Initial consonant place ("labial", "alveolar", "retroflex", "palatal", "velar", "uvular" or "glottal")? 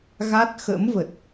velar